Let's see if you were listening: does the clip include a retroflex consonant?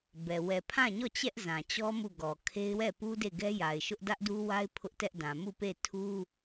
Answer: no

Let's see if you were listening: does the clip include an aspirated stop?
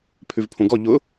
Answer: yes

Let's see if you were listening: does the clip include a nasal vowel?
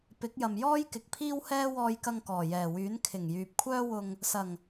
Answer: no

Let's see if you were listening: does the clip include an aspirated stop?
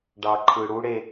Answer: yes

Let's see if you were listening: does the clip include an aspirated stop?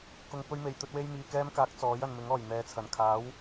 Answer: yes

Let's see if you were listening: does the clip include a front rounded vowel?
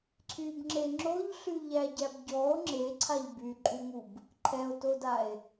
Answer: yes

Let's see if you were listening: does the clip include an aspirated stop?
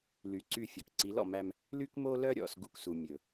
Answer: no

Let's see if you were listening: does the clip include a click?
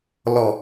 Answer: no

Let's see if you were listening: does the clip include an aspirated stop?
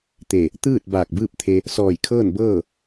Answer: yes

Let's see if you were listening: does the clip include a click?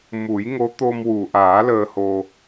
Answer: no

